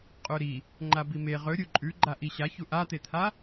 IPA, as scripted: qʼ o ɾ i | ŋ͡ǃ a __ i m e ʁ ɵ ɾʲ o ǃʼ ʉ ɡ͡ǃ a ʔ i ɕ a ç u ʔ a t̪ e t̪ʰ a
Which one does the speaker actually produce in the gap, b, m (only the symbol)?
b